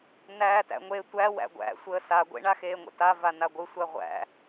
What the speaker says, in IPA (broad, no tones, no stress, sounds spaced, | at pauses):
n æː t æ̰ ŋʷ e tʷ æ w æ̰ ɡʷ æ̰ sʷ əː s a ɡʷ ḛ ɳ a x eː ŋʷ ə̰ t a v a n a ɡʷ ɯ sʷ æ ʁʷ æ̰